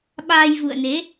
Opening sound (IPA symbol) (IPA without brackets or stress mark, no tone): ɓ